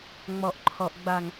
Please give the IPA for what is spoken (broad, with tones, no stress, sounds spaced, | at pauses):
ŋ͡m ɔ˨ ʔ ǃʰ ɔ˨ ʔ ɡ͡b a˨ ŋ